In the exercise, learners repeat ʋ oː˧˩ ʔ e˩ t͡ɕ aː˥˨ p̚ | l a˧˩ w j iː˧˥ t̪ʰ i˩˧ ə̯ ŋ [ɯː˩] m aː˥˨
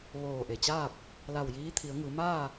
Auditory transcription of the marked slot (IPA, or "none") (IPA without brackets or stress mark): ɯː˩˧